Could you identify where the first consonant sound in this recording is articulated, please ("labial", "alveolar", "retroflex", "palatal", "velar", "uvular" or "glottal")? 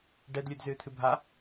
retroflex